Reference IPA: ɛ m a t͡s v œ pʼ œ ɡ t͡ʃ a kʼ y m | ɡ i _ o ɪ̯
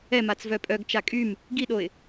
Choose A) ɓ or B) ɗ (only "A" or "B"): B